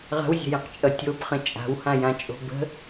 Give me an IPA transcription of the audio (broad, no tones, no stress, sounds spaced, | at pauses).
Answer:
ʁ ə̤ w zʲ ə̤ j ə̃ q t͡ʃʼ ʌ tʲ o b χ ə̃ t͡ʃʼ a̤ w h ã j ã t͡ʃʼ o̤ b ə̤